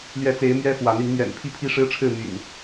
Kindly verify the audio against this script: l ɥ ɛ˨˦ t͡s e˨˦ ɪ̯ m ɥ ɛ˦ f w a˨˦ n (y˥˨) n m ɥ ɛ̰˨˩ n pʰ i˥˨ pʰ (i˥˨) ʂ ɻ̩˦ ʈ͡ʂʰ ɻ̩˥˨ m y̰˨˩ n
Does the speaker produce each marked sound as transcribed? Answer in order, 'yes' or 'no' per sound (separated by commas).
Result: no, no